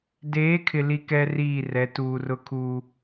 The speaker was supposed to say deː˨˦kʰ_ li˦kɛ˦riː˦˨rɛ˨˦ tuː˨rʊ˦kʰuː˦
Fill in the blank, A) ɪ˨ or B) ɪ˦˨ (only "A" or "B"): A